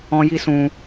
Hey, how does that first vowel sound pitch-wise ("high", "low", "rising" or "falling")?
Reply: high